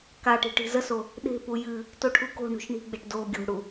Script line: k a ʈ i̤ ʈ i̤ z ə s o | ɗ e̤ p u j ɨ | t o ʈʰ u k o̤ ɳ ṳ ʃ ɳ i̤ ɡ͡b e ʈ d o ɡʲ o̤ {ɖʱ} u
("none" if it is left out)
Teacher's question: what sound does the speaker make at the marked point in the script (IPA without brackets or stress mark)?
ɽ